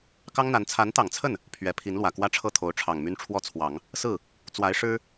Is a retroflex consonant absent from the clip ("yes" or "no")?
no